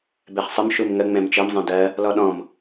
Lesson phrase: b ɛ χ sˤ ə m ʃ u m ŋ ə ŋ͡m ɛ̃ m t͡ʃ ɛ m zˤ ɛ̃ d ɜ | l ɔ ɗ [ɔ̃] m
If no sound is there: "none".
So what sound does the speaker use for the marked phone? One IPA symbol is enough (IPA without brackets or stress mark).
ɔ̃